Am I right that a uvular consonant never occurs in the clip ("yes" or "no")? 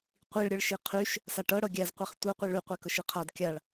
no